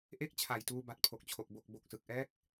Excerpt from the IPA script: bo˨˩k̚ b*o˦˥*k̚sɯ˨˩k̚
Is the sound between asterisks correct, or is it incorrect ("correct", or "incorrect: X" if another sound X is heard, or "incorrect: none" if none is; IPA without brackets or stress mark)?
incorrect: o˨˩